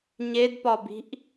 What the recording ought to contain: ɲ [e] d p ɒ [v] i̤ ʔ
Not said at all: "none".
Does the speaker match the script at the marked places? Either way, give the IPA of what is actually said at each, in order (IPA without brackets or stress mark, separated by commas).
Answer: e, b